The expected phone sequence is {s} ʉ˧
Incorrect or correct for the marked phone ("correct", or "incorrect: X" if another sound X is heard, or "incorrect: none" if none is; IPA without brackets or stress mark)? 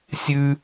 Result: incorrect: sʲ